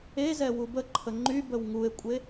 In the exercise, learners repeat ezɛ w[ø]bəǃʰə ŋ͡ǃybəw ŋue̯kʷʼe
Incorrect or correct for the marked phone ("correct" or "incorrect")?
incorrect